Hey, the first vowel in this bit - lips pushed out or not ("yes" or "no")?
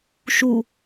yes